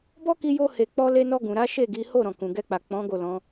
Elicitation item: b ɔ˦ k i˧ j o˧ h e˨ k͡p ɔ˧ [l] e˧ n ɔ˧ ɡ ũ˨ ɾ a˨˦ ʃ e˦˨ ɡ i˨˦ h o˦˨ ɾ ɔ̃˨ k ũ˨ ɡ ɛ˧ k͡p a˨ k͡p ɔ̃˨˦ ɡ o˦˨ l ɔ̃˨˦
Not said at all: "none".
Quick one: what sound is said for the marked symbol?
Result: l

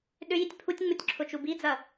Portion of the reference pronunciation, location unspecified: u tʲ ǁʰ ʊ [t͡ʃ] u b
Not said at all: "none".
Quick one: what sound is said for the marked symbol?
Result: t͡ʃ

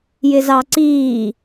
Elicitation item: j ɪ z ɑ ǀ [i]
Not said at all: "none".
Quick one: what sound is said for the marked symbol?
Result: iː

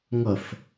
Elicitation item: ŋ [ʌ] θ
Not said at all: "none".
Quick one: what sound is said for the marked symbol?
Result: ʌ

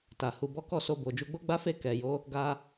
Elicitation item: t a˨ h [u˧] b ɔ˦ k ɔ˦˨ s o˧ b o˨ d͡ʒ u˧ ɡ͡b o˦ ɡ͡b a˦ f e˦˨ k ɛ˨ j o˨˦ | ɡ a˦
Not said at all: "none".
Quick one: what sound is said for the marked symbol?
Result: u˧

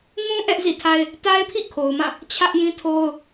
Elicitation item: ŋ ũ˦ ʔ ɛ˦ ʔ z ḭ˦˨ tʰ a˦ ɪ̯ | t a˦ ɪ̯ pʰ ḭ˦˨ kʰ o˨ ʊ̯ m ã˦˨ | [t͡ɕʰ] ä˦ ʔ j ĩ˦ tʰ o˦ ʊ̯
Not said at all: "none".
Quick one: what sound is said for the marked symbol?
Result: t͡ɕʰ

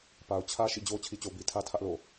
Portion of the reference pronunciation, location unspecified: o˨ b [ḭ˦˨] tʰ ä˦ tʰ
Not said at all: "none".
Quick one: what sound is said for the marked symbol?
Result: i˦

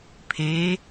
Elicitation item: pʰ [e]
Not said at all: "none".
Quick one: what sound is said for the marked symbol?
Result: e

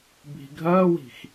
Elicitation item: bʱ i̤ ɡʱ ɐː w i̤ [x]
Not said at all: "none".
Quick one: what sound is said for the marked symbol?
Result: x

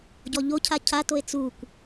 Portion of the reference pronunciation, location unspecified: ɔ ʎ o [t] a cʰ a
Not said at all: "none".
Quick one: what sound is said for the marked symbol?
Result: cʰ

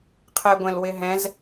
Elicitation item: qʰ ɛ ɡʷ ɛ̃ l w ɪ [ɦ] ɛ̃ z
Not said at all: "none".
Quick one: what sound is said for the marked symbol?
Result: ɦ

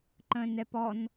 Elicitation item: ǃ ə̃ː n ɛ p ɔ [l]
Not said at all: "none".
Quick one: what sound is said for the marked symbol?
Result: n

